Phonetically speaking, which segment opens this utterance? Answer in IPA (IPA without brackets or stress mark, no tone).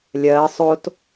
lʲ